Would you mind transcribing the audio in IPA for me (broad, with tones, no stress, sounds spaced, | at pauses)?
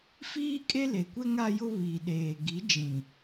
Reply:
f iː˦ kʼ e˦ l e˨ kʷ ɛ˦ ŋ a˦ j ʊ˦ β iː˨ ɗ eː˨ ɡ i˨˦ d͡ʒ ĩ˨